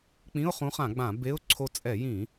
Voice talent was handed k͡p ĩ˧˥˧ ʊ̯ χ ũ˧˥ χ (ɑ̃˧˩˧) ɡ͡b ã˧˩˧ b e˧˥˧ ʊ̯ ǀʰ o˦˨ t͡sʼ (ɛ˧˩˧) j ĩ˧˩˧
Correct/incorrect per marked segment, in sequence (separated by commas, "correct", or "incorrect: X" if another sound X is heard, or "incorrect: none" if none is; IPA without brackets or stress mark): incorrect: ã˧˩˧, correct